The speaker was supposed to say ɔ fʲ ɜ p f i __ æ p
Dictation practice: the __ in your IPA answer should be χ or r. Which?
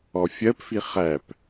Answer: χ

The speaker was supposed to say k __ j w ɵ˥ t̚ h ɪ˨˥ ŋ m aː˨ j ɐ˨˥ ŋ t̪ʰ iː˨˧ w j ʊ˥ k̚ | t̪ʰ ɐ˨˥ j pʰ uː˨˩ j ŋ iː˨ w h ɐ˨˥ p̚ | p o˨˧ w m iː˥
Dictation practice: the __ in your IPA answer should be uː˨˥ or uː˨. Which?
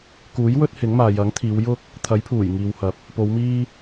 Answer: uː˨˥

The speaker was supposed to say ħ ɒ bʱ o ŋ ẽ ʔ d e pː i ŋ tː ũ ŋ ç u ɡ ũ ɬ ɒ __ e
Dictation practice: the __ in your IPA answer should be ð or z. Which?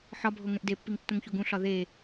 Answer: ð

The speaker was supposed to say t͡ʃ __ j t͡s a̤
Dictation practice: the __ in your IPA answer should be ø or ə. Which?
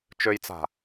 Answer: ø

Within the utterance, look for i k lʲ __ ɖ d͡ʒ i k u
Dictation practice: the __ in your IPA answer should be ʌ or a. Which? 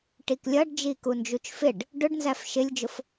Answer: ʌ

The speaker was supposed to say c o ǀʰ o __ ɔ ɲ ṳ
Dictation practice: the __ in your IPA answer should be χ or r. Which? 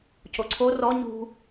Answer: r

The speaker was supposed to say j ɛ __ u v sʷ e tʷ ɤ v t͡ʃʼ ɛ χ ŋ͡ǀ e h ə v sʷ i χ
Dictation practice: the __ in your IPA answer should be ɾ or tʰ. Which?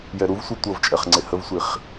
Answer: ɾ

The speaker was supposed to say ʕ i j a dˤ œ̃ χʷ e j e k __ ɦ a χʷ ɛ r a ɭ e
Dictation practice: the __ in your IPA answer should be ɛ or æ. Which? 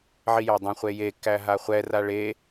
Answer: æ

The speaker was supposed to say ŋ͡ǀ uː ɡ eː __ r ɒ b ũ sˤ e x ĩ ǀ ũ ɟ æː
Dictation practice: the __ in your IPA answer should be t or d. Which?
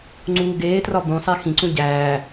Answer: t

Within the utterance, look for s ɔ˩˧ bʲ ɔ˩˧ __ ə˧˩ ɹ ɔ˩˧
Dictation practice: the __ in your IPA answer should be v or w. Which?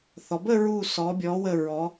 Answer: w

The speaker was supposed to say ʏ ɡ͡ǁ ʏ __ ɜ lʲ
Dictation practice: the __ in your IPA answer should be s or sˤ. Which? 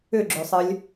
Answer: sˤ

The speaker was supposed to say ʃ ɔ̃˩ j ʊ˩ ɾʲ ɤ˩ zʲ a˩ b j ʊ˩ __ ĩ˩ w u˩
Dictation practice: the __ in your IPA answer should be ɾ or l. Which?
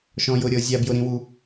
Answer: ɾ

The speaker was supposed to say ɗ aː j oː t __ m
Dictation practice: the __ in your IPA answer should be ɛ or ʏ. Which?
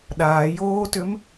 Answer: ʏ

